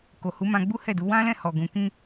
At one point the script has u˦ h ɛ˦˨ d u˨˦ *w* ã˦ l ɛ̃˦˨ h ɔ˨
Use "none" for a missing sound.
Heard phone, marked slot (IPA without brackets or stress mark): w